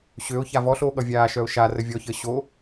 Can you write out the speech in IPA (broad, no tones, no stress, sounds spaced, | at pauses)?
ɕ ø ʊ̯ ç a v ɔ ɬ oː ɠ ʌ vʲ aː ʃ œ ʊ̯ ʃ a r ə vʲ ɔ ç əː ɕ o